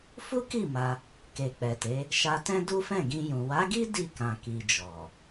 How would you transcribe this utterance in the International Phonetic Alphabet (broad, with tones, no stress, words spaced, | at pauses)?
fu˦ki˦˨ ma˧ | ke˨k͡pɛ˨te˨˦ | ʃa˧tɛ̃˦du˦ fɛ̃˦˨ɡĩ˧jũ˨ wa˨˦ɡi˦ di˦˨kã˨ki˨d͡ʒɔ˨